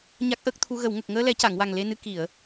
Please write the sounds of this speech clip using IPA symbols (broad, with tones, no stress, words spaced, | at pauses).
ɲa˦˥k̚ʔəː˦˥k̚t̪ʰu˧ ɣə˨˩˨wŋə˨˩k̚ ŋəː˧lɛ˨˩˦ca˨˩˨ŋ wa˨˩ŋle˧nɨ˧˥ ki˨˩˨ə̯